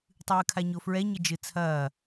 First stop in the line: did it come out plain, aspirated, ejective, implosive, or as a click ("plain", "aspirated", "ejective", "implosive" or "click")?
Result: plain